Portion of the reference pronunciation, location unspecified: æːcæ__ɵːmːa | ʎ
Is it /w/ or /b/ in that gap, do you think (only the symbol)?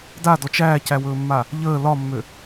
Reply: w